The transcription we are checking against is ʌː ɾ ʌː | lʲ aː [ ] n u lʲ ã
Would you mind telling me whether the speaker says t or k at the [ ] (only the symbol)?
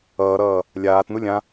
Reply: t